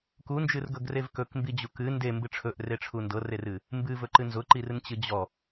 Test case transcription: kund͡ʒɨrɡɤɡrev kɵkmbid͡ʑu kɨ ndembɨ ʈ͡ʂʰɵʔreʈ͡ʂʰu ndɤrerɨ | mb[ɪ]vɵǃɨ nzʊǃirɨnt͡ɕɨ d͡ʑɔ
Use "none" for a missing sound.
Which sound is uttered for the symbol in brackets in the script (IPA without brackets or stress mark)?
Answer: ɨ